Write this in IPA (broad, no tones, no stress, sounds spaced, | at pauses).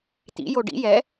t̪ ḭ j o ɖ ḭ j ɛ